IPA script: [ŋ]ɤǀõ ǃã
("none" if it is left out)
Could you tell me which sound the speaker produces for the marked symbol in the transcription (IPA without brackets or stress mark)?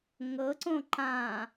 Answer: ŋ